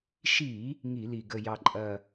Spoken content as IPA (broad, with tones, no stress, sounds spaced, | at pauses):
ʃ i˧˩˧ | ŋ i˧˩˧ l i˨˩ ɡ ə˨˩ j ɑ˨˩ ǃʼ ɐ˨˩